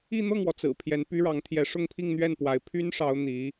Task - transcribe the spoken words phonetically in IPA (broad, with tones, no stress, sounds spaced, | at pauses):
i˥˧ n̪ ɤ˥˩ ŋ w ɔ˩ t͡s ɹ̩˨˩ pʰ j ɛ˧˥ n p y˥ ɻ ɑ˧˥ ŋ t̪ʰ j ɛ˧˥ ʂ ʊ˥˧ ŋ pʰ i˥˧ ŋ n̪ ɥ ɛ˥˩ n p w a˧˥ ɪ̯ pʰ y˥ n ʂ ɑ˧˥ ʊ̯ n̪ i˧˥